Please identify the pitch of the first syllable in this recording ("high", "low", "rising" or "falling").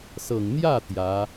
low